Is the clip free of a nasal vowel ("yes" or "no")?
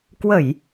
yes